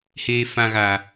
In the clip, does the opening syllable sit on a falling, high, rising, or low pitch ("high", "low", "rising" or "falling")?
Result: low